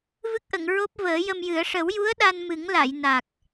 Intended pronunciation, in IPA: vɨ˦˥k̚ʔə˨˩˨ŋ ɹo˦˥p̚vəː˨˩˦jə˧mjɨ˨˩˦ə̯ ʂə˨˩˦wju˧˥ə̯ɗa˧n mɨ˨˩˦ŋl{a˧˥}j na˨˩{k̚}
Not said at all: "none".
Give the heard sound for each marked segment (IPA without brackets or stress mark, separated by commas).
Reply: a˨˩˨, k̚